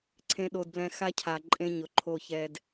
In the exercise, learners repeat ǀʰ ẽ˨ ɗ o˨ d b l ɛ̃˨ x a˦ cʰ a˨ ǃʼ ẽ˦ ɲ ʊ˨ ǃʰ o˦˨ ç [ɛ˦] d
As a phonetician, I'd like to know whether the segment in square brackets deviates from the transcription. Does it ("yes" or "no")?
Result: no